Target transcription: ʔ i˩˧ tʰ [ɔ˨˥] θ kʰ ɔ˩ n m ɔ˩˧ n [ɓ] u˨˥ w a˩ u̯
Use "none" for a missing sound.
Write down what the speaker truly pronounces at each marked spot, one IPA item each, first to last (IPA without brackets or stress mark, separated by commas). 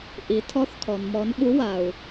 ɔ˨˥, ɓ